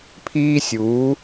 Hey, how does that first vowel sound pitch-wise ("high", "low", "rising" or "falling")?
high